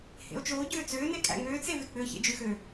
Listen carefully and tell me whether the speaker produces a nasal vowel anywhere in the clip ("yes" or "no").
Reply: no